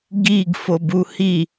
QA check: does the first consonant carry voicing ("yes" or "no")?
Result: yes